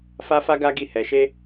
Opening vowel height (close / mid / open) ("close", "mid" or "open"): open